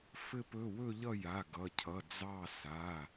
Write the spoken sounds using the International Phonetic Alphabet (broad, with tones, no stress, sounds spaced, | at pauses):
f ɘ˦˨ p ɵ˩˧˩ w ɵ˦˨ ʎ ʌ˦˨ j a˩˧˩ ɡ ʌ˩˧˩ cʰ ʌ˩˧˩ d͡z ɑ˦˨ s a˩˧˩